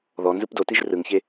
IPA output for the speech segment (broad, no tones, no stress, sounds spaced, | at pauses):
ð ɔ n z ɯ p d o t i ʒ r ɯ ŋ ç e